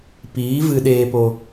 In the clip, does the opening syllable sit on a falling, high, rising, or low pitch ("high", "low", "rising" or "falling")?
rising